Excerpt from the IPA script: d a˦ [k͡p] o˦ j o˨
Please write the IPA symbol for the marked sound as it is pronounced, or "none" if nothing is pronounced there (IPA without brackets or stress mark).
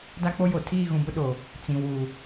k͡p